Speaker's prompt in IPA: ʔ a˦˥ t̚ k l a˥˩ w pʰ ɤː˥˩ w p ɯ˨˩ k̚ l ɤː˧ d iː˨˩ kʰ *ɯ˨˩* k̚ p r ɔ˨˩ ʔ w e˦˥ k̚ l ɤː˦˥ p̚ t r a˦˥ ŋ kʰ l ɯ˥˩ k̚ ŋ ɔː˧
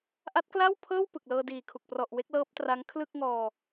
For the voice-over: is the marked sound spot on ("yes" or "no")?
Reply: no